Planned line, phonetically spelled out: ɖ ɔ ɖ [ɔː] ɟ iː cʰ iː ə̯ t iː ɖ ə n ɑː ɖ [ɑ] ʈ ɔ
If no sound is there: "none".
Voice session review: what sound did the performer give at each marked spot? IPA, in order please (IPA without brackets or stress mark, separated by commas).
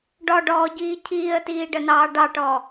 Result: ɔː, ɑ